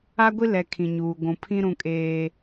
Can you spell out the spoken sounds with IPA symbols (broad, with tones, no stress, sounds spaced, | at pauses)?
a˦ ɡʷ i˦ l ɛ˨ kʰ ĩ˨ ɲ uː˨ ɡʷ ũ˨ pʰ ĩ˦ ɾ ũ˦ kʼ eː˦